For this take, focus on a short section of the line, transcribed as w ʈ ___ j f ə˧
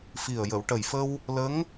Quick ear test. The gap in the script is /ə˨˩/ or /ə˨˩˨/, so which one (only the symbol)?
ə˨˩